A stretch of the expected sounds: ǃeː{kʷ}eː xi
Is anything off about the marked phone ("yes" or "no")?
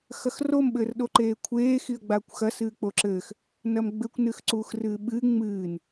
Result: yes